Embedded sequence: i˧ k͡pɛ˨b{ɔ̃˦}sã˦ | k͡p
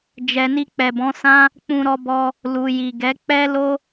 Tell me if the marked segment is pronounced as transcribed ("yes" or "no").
no